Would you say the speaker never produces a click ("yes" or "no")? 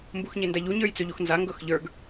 yes